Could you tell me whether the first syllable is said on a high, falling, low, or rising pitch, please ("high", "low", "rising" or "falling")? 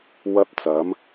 high